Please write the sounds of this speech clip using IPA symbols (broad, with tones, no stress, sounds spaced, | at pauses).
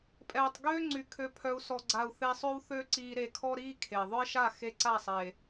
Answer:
pʼ ɛː˨ tˤ ɡ øː˦ ŋ͡ǀ y˨ kʰ ø˨ pʰ œ˨ u̯ s ɔ˨ ɡ͡ǀ a˨ u̯ θ e˧ sˤ ø˦ w θ ø˦ ǀ iː˧ ɾ e˧ kʰ ɔ˦ ɾ iː˦ kʰ e˨ ðˤ œ˦ i̯ ʃ a˦˨ x e˧ ǀ a˦˨ sˤ e˨